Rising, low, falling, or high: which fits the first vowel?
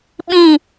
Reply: falling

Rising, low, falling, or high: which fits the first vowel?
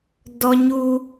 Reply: high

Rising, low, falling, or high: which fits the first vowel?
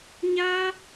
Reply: high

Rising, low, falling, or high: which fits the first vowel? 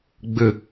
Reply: low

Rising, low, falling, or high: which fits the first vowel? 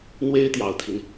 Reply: high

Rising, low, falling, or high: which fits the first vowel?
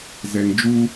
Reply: low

